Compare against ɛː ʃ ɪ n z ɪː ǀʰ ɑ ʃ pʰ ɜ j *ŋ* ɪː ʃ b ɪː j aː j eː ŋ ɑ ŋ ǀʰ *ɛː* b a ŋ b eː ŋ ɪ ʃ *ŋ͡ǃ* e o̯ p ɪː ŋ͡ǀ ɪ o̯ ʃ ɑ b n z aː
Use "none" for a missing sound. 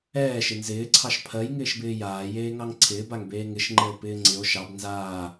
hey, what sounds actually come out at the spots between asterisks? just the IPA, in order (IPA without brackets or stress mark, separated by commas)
ŋ, ɪː, ŋ͡ǃ